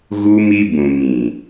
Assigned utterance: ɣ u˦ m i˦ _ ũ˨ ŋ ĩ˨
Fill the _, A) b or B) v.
A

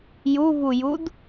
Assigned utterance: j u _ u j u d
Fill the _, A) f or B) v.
B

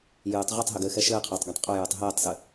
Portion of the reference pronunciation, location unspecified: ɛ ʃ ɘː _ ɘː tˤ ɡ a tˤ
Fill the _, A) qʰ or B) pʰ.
A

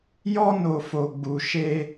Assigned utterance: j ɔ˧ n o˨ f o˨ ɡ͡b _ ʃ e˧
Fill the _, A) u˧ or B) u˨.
B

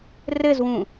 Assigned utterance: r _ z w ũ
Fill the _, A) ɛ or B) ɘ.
B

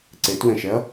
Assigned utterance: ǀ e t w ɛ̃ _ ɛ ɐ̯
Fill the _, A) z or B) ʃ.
B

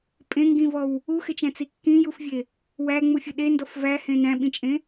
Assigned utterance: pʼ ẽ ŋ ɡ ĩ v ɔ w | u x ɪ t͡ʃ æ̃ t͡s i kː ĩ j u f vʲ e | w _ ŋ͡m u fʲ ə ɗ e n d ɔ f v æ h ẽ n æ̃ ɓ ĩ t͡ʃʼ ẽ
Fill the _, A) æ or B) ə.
A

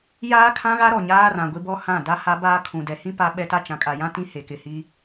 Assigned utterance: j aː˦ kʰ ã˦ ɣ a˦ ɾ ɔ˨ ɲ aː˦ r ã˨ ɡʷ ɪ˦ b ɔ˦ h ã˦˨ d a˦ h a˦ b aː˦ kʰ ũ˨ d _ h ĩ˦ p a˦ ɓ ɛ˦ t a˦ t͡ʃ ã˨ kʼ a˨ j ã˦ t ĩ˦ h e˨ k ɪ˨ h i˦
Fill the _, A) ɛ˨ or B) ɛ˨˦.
A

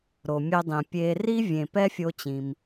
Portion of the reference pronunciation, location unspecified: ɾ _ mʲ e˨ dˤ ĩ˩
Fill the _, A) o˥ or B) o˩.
B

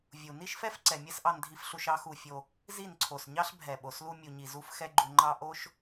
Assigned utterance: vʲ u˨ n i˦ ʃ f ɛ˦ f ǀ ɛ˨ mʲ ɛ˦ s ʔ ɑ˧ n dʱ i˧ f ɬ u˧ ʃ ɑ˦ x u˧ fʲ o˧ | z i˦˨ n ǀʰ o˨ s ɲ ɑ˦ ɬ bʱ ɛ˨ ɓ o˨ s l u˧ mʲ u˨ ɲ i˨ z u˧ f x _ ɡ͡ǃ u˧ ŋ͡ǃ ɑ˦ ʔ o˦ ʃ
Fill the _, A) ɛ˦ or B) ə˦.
A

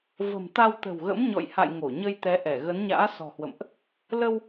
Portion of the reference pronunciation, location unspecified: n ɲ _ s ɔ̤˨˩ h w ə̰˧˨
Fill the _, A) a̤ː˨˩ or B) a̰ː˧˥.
B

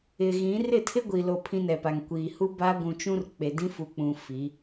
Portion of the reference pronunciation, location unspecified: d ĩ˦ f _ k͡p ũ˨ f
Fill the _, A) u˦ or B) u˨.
B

